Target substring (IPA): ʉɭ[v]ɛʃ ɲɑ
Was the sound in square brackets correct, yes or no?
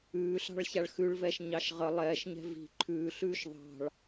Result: yes